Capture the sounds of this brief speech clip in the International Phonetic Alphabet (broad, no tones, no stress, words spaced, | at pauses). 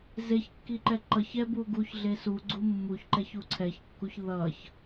zeçkːiǃɛ ǃʌç ɛbu ɡuçɮe suɡ͡ǀu mːuçǃɛçu ǀʰɛçkːuç ðʌç